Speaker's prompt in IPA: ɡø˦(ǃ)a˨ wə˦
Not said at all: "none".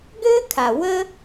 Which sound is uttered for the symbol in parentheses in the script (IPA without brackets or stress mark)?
kʰ